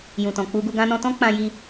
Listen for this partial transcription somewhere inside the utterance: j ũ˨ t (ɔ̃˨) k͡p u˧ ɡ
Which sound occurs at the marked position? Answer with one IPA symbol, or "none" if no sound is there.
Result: ɔ̃˨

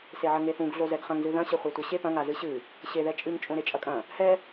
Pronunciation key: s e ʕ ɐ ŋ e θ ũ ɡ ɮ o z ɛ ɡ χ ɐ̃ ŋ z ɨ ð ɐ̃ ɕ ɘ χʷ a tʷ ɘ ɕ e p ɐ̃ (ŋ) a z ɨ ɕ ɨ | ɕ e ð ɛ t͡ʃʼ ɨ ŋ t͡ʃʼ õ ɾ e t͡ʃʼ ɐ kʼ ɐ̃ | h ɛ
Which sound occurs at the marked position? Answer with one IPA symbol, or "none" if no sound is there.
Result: ŋ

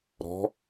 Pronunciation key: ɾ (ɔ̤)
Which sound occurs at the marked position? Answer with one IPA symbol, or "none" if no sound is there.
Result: ɔ̤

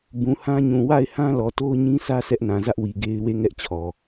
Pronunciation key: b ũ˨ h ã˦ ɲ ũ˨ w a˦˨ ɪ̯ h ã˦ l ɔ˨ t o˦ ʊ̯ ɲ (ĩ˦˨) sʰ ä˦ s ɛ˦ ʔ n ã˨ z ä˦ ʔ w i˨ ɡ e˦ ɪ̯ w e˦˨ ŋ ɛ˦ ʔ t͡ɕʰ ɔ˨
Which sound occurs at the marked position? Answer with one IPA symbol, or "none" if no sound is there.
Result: ĩ˦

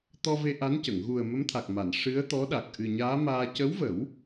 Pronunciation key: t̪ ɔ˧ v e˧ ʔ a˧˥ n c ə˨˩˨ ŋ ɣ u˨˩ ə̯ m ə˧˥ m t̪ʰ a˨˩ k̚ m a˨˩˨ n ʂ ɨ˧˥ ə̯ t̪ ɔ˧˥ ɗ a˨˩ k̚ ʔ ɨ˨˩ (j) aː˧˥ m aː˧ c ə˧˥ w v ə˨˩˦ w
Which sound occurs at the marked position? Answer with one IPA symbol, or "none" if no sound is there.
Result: ɲ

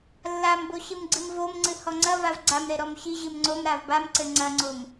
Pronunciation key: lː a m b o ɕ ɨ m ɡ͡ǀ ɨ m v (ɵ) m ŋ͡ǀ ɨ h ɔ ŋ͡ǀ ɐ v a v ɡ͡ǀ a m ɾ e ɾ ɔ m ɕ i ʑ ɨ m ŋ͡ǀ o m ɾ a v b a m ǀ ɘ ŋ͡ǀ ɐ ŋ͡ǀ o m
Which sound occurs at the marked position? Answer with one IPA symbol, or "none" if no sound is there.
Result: o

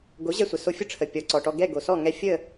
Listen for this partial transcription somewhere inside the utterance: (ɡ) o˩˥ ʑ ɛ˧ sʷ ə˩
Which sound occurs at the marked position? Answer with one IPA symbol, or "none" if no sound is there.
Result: ɡ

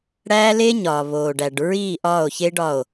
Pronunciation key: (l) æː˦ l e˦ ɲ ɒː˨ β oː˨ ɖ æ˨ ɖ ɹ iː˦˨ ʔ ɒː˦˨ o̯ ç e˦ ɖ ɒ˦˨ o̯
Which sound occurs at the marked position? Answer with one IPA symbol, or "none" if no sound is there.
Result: ɽ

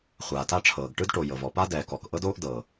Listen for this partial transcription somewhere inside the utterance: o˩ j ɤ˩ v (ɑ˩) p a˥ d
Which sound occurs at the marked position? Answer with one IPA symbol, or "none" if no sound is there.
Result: ɔ˩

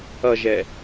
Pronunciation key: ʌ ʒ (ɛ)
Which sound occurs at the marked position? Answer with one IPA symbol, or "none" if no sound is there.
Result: ɛ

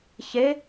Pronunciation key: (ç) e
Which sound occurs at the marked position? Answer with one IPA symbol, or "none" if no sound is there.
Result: ç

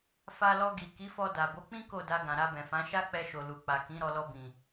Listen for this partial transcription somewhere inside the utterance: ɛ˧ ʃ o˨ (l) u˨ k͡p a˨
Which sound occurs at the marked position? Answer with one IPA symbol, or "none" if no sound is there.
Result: l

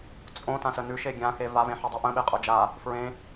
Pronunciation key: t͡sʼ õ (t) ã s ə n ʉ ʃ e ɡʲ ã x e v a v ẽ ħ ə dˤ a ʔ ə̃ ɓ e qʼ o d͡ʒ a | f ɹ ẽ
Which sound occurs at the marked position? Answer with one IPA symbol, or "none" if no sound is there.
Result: t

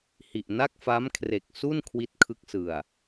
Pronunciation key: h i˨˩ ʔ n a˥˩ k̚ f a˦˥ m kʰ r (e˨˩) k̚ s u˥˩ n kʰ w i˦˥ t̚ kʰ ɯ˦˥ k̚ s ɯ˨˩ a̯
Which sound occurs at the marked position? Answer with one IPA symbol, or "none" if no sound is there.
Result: e˨˩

